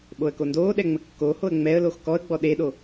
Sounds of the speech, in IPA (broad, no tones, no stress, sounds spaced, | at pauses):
ɓ o ə̯ k o n d oː ɗ ɛ ŋ͡m ə kː o h o ə̯ ŋ͡m ɛ ə̯ l o x k ɔ ə̯ ɡ͡b ɔ ɗ e ɗ o